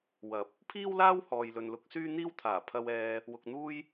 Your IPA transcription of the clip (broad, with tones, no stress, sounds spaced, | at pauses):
w ɐ˨˥ p̚ | pʰ iː˥ w l aː˥ w h ɔː˨ j l ɵ˨ n l ʊ˨˥ k̚ s yː˥ n̪ iː˥ w t̪ʰ aː˨˩ pʰ ɐ˧ w ɛː˧ | w ʊ˧ k̚ n̪ uː˥ j